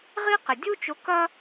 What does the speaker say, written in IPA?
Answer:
ʁi˥qɪ˨ dʲu˥t͡ʃʊ˧˥ kɐ˥

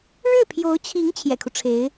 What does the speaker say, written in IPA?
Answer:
ɻɻ̩˥˩pʰjo˧˥ʊ̯t͡ɕʰi˧˥ŋ t͡ɕʰjɛ̰˨˩kʰu˦ʈ͡ʂʰe˧˥ɪ̯

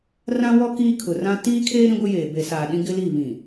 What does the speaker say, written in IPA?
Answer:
rã˦wɔ˦ kiː˦kʰʊ˨rã˦ tiː˦kʰeː˦ ɾĩ˦ɡʷɪ˦jeː˨ be˨saː˨ ɗĩ˦ɡɪ˦li˦˨ βĩ˨

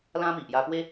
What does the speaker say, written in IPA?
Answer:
lã˦mi˨ʔja˧pwe˦

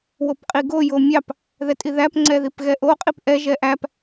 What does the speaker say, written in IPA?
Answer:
wopqʼiɡo jomʲɑp | ðɛtʼiðæp ŋ͡ǀɛðipɣɛʔo qʼipʔɛ ʒɛʔæp

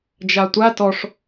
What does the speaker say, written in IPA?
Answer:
d͡ʒatʷa tɔʂ

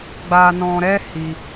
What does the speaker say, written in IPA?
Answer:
ɡ͡ba˧nɔ̃˧ɾɛ˦ hi˧

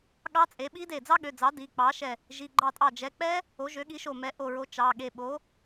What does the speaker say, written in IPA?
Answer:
ɠɑ˦˥t͡sʼe˩˥ ɓi˦˥de˧˩ d͡zɑ˦˥ɠø˩˧˩d͡zɑ˩˥ di˩˧˩k͡pɑ˩˥ʃɛ˧˩ | ʒi˩˧˩ɡ͡ǃɑ˧˩tʼɑ˧˩ d͡ʒɛ˩˧˩k͡pɛ˦˥ | o˩˥ʒø˩˥ɠi˩˥ ʃo˧˩mɛ˩˥ ʔo˧˩ɹo˩˥ t͡ʃɑ˩˧˩ɠe˧˩ ɓo˩˥

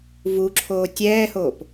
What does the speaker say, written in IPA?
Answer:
vuǁʰoː tʲɛːhoːp

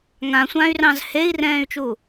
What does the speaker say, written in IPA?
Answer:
ŋãsʷãːy̯rɑ̃z hei̯rɛ̃ːy̯t͡ʃu

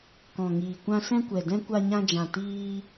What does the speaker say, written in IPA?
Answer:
kɔ̃˨ŋiː˨kʷã˧ sɛ̃˧kʷɛ˨dɛ̃˧ kʷa˧ɲã˧d͡ʒã˨ tiː˧

